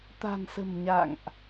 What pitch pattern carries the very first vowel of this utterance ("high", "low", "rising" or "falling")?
low